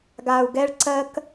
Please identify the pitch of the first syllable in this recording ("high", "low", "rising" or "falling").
low